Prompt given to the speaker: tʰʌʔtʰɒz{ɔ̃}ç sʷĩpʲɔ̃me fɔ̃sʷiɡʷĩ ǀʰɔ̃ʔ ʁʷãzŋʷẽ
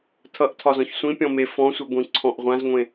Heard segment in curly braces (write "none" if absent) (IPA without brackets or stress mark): ɔ̃